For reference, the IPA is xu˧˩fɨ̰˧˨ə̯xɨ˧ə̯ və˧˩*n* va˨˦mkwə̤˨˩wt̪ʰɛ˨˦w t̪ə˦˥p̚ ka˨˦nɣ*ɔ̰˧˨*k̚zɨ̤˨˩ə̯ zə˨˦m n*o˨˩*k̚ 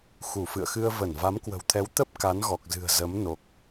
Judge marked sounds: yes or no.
yes, no, yes

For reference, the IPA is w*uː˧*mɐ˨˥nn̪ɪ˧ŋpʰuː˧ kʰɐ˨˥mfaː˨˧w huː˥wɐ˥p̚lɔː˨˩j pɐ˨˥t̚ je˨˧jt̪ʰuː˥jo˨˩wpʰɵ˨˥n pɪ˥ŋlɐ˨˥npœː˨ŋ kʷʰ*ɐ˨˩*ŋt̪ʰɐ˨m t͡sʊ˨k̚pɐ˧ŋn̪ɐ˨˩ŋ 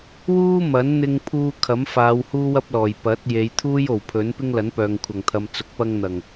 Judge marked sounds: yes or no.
no, yes

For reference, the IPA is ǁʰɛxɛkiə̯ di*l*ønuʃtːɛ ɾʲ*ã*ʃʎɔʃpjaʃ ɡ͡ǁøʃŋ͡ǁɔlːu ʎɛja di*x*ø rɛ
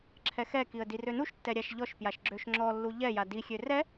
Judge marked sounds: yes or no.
no, no, no

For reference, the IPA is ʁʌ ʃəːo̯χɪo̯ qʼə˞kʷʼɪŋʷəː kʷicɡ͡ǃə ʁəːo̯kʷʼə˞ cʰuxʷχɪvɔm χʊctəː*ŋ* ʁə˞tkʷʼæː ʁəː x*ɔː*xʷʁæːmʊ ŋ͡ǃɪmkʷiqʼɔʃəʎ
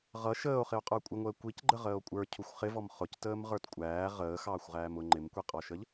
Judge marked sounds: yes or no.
no, no

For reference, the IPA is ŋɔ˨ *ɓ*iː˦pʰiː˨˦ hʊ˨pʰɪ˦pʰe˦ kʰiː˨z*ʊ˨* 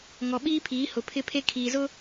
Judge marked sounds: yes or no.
yes, no

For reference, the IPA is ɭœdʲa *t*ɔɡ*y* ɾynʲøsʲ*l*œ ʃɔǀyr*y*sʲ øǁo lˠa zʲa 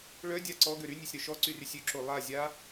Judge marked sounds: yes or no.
no, no, no, yes

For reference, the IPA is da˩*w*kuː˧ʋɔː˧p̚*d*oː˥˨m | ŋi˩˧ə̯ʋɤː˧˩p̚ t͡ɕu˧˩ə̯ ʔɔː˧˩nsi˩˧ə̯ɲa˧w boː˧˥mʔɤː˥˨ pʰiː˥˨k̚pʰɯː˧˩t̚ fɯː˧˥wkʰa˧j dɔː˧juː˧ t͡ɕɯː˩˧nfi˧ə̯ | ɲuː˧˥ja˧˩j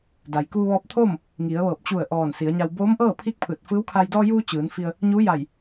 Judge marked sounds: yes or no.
no, no

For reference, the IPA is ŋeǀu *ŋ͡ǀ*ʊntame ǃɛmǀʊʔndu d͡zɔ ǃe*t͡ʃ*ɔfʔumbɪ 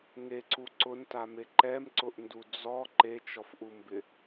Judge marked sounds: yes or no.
no, yes

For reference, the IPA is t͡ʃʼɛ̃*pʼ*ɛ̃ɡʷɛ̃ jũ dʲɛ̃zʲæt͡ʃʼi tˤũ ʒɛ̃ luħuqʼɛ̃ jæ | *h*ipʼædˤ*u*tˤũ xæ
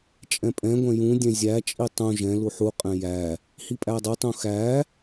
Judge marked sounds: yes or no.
yes, yes, yes

